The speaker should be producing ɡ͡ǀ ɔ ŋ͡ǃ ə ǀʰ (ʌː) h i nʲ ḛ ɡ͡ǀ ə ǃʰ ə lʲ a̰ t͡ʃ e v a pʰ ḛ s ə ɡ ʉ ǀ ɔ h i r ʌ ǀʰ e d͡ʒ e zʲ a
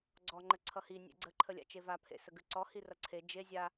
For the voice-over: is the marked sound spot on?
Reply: no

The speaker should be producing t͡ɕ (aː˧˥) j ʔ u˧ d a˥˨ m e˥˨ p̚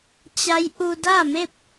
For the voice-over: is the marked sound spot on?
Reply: no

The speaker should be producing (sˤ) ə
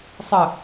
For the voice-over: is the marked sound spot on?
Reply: yes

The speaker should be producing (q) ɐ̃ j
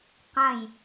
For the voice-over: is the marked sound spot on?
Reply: yes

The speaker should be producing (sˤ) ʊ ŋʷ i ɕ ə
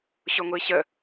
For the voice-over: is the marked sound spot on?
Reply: no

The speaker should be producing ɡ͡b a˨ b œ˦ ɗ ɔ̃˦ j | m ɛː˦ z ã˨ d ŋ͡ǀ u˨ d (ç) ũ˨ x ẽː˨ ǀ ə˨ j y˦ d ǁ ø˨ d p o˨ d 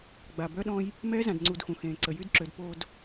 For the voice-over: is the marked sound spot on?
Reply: no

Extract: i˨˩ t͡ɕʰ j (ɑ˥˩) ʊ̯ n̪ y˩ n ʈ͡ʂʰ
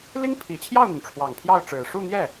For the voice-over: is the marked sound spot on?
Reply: yes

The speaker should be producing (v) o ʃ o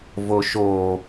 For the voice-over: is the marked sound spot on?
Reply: yes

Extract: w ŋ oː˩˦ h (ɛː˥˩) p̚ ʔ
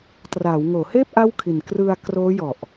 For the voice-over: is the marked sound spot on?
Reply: no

